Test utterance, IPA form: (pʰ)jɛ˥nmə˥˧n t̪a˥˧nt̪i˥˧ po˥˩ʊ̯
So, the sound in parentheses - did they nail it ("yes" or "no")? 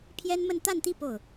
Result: yes